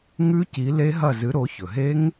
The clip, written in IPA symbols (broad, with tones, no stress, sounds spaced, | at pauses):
ŋ ʉ˦˥ c i˨˦ l e˦˥ ɦ ɐ˦˨ z ɨ˨˦ ɾ o˨˦ ç ɵ˩ ɦ e˦˥ ŋ